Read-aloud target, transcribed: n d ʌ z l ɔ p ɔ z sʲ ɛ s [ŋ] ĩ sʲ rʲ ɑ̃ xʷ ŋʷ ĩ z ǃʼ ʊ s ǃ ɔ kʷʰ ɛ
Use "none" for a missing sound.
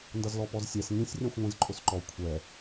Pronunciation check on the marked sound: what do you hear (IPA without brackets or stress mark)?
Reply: ŋ